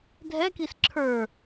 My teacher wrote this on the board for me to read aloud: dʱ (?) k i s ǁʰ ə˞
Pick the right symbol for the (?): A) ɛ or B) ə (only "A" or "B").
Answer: A